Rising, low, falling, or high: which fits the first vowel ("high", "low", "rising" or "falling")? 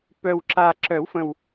low